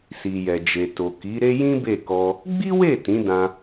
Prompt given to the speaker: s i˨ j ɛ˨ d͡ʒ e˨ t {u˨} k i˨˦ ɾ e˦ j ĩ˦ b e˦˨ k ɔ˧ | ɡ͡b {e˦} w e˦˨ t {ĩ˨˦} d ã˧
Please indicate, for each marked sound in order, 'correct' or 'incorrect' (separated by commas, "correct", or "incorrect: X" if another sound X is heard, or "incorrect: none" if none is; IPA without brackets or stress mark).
incorrect: o˨, incorrect: i˦, correct